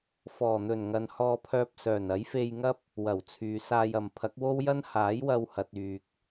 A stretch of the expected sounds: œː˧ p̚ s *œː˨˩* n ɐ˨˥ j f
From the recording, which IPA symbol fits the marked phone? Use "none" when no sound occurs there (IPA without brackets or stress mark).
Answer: œː˨˩